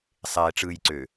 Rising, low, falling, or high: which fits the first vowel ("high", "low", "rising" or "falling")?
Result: low